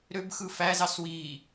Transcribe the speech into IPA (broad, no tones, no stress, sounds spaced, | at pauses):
ɾ ø b x ɯ f æ z ɑ s w iː